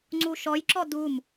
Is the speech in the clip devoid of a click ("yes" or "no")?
no